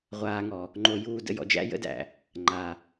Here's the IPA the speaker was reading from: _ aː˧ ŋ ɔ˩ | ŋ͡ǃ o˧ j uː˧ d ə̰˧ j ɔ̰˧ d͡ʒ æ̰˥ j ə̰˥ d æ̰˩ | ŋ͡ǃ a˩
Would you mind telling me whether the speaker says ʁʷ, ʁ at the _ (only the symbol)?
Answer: ʁʷ